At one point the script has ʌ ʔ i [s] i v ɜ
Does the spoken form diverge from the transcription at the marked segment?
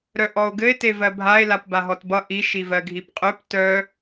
yes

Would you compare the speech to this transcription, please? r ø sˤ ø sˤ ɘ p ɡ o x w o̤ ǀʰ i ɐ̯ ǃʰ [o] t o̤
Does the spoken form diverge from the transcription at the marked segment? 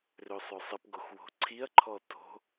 yes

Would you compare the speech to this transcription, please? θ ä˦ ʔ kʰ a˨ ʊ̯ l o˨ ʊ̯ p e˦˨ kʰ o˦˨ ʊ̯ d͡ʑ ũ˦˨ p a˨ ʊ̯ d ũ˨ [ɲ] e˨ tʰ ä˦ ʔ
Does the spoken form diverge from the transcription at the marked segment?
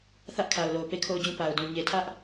no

